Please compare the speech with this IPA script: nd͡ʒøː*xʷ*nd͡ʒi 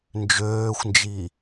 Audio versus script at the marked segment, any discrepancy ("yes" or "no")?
no